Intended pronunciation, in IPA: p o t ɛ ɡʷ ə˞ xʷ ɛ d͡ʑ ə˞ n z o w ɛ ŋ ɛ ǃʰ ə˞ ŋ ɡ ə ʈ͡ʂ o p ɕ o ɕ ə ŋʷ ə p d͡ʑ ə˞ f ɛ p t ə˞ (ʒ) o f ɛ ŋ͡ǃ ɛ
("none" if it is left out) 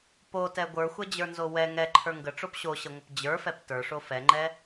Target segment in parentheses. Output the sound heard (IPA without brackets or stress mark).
ʂ